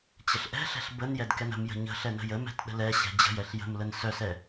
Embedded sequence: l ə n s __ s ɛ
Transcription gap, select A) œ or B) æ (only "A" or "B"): A